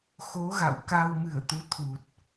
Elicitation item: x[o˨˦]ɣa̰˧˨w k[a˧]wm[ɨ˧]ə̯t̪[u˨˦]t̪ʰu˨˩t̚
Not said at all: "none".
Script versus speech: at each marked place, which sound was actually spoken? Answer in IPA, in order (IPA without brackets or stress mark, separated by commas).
o˨˦, a˧, ɨ˧˩, u˨˦